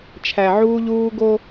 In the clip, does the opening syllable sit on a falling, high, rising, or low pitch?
low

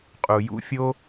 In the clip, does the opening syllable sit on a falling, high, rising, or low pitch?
low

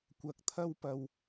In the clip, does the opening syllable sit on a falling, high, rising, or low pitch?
low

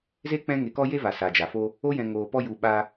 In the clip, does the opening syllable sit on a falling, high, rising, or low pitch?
high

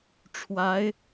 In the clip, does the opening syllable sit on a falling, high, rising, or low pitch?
rising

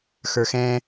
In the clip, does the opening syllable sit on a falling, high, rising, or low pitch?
high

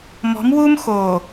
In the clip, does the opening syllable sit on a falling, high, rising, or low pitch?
rising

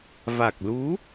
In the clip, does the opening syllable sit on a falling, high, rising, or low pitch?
low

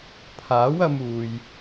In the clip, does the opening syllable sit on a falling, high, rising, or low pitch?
rising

